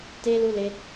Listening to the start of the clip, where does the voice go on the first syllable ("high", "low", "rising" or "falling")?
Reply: high